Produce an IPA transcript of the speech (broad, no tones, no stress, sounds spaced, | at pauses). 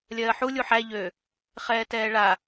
lʲ ɜː ħ u lʲ u ħ æ ʎ ø | χ ɛː t ɛː ɭ a